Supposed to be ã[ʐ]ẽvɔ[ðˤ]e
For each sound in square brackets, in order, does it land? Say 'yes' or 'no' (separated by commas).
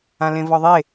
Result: no, yes